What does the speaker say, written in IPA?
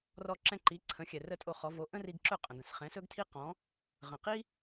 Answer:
r ɔ˧ ǁ ɛ̃˧ ǃ i˩˥ ǀʰ ə̃˩˥ xʲ ɛ˩ r ə˥˩ tʼ o˧ χ ɔ˩˥ v o˩˥ ʔ ə̃˥ r i˧ ɡ ǁ ɵ˥˩ qʼ ə̃˩ ɡ ə̃˩ s χ ɛ̃˩˥ s ɵ˥ ɡ tʰ i˥ q ɔ̃˩˥ | ʁ ə̃˩ q i˥

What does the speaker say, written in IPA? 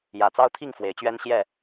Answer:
j ä˨˩ t͡s ɑ˦ ʊ̯ t̪ʰ i˥˨ ŋ f w e˨˦ ɪ̯ t͡ɕ ɥ ɛ˦ n ɕ j ɛ˥˨

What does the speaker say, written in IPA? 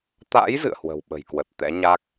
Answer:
t̪ a̰˧˥ j z ɨ̰˧˨ ə̯ h w ə̤˨˩ w ɓ ə̤˨˩ j k w ə˨˩ t̚ t̪ ɛ̰˧˥ ɲ a˦˥ k̚

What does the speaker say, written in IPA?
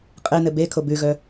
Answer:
qʼ e n ɘ b e kʰ o b ʉ ɣ œ

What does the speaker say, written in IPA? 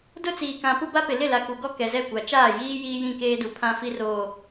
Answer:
d ʊ˦ t͡s iː˨ k ã˨ p u˦ b a˦ p ɪ˨ l ɪ˦˨ l a˨ k u˨ ɡ ɔ˦ k ɛ˨ z ɛ˦˨ kʷ a˨ t͡ʃ aː˦˨ j iː˦ j iː˦ j ĩ˦˨ k eː˦ d u˨ pʰ ã˦ f i˦ r oː˨

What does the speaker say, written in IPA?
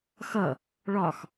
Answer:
x ʌ | ɭ ɒ x

